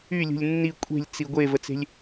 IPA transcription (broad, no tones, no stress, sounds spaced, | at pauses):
y lʲ ṳ lʲ nː i kʷʼ e̤ lʲ t͡s i ɡʷ e v ə t͡s e̤ lʲ